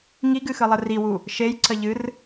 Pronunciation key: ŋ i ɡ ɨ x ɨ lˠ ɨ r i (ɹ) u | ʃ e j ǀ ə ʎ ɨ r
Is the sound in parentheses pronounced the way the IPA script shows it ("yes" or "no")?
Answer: no